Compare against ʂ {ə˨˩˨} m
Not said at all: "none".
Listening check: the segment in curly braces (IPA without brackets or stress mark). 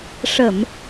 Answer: ə˨˩˨